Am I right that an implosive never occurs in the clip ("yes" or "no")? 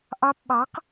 no